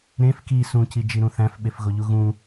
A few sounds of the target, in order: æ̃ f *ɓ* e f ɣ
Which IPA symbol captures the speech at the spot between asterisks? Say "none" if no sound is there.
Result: ɓ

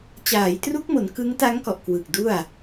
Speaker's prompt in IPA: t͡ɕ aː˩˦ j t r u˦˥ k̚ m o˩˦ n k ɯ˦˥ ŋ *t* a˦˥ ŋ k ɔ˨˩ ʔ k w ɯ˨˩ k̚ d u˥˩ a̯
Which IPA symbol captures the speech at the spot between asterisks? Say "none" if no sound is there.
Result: t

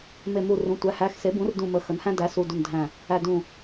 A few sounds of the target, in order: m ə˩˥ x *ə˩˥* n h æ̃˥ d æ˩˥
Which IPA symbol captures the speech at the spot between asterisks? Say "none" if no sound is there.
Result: ə˩˥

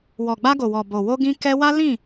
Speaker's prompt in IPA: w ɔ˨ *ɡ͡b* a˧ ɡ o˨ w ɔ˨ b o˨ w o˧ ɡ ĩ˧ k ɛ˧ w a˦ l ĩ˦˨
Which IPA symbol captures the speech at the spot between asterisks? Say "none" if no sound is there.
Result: ɡ͡b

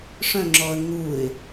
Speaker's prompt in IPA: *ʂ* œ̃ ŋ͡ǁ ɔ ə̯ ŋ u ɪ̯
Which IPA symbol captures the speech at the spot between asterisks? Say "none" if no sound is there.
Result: ʂ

